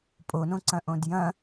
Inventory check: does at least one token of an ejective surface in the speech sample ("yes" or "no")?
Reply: yes